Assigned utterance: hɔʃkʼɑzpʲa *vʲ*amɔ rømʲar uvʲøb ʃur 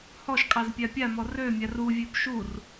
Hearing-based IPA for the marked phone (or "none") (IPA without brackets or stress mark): pʲ